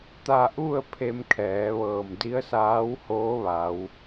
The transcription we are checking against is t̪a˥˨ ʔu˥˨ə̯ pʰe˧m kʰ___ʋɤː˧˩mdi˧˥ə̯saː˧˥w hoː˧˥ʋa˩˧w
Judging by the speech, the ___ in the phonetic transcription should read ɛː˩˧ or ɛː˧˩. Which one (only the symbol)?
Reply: ɛː˩˧